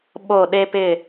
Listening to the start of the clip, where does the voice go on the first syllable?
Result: falling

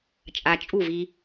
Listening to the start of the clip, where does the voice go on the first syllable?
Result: low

